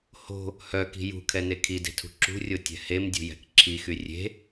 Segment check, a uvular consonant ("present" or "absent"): absent